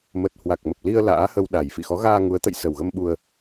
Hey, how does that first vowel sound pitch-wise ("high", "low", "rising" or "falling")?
low